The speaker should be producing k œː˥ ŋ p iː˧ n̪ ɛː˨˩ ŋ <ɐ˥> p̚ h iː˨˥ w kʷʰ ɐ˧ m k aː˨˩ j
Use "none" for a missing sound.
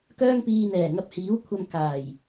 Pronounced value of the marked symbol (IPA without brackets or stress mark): ɐ˧